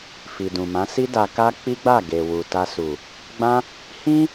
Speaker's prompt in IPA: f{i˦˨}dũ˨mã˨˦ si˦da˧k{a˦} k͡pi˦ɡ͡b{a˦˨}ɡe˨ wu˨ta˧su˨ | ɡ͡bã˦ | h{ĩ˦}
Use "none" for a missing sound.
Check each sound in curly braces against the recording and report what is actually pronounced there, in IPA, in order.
i˨, a˦, a˦˨, ĩ˦

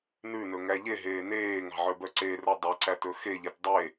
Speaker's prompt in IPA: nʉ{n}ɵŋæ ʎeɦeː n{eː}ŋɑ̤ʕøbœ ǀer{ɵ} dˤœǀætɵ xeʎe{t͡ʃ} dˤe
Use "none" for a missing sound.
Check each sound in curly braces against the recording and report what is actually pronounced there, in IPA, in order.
n, eː, ɵ, t

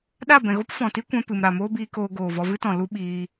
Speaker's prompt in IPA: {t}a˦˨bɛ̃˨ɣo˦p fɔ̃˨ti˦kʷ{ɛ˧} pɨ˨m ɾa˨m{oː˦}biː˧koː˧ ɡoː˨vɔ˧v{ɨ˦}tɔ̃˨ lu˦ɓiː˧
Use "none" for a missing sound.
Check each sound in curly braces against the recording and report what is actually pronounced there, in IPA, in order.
ɗ, ɛ̃˧, oː˦, ɨ˦

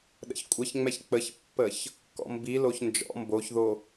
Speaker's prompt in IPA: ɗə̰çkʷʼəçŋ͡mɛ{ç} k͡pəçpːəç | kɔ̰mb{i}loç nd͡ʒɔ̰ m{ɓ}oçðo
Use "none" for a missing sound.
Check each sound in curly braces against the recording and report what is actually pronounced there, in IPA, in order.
ç, i, b

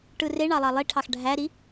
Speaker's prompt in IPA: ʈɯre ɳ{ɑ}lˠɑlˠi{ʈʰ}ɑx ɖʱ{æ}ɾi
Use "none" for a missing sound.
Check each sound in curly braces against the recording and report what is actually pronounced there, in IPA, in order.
ɑ, ʈʰ, æ

